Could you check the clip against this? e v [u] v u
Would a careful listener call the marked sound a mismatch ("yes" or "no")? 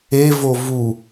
yes